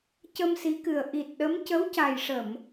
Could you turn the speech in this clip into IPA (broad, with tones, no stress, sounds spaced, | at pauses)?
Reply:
c ə˧ m s i˧˥ k ɨ˨˩ ə̯ ʔ i˨˩ t̚ ɗ ə˧˥ m c ə˧˥ w c a˨˩ j ʂ ə˨˩˨ m